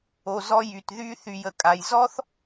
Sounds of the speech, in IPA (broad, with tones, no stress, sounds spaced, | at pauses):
o˩ z ɔ˧ j y˩ t ð y˧ θ y˩ j ə˩ kʼ a˩ j z ɔ˥ θ